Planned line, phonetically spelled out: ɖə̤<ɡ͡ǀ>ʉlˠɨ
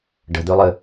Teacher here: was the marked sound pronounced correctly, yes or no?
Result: no